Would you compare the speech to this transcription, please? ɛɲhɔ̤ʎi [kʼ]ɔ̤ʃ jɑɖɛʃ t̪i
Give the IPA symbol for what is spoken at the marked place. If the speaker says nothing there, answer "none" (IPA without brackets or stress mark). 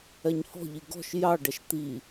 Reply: ɡ